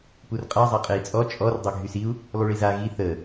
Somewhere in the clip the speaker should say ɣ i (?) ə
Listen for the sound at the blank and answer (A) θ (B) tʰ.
A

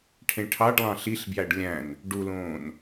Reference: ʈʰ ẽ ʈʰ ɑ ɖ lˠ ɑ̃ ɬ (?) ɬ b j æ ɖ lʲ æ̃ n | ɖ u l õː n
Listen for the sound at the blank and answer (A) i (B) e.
A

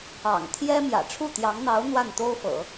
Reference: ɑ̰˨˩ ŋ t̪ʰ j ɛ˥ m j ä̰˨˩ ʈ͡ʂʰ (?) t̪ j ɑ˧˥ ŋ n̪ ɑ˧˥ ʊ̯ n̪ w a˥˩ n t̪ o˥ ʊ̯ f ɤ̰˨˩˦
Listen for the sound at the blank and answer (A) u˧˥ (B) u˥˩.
B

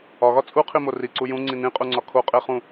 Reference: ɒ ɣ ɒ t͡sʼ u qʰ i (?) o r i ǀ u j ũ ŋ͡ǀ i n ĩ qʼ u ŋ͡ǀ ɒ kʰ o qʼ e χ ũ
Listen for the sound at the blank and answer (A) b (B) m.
B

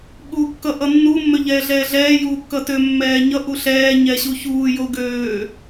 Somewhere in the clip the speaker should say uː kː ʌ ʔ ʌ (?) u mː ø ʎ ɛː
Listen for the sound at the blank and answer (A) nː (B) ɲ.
A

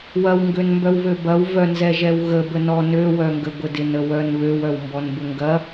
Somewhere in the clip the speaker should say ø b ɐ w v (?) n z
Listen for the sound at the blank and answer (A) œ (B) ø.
A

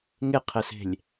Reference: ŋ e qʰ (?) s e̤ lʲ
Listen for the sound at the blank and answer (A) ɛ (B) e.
A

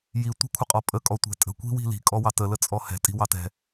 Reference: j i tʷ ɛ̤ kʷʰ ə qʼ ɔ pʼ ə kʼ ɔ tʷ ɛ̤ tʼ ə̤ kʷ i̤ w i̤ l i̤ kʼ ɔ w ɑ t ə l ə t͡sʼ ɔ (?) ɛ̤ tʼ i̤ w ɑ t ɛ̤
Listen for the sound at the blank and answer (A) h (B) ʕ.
A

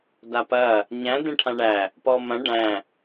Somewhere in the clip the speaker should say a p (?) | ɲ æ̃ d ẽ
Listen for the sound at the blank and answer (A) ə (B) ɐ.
B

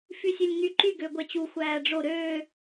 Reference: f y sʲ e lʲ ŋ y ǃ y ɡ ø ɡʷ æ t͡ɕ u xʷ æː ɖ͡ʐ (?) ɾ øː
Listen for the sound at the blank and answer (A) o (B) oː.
A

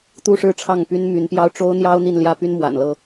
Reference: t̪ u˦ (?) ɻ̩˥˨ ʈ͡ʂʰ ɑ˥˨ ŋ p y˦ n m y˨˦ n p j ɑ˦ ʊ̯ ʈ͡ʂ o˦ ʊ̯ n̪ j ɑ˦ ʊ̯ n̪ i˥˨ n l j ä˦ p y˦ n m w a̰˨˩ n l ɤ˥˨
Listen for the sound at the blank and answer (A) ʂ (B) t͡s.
A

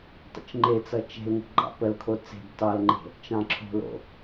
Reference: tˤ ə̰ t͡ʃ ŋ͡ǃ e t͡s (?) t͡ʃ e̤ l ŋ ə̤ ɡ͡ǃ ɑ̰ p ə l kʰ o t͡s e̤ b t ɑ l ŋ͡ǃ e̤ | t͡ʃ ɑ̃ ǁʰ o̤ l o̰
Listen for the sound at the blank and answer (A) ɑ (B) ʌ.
B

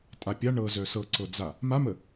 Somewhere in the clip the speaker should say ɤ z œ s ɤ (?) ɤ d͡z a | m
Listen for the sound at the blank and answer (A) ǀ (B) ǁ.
A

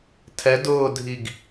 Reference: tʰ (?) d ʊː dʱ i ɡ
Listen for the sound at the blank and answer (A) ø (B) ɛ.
B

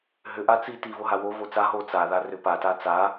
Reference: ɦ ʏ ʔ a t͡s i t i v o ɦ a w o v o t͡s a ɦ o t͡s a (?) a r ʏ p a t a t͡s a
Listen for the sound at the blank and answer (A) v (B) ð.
B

